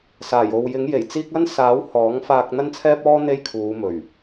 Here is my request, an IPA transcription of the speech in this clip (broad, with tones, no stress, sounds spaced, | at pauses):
s aː˨˩ j o˨ w j ɪ˨˥ ŋ j e˨˩ j t͡s iː˥ k̚ ɐ˥ n s aː˨˥ w h ɔː˨˥ ŋ f aː˧ k̚ n̪ ɐ˥ n t͡sʰ ɛː˥ p̚ ɔː˥ n̪ e˥ j kʰ uː˨˧ m ɵ˨˩ ɥ